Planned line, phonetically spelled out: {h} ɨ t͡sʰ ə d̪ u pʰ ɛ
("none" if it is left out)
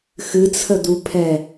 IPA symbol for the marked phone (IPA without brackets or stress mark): x